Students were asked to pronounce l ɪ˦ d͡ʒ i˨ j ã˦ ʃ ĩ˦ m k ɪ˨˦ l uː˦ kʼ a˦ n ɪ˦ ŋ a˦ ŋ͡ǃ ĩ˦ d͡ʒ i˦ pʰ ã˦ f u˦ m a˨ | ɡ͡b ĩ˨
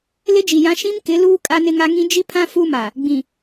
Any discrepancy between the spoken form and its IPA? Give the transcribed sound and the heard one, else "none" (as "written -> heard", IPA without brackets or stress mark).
ŋ͡ǃ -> ŋ